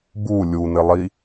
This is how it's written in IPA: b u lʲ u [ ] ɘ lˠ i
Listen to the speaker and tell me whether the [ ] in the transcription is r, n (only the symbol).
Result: n